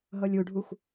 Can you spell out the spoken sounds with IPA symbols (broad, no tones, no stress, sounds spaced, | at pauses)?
ɦ ɤ lʲ u ɖʱ u xʷ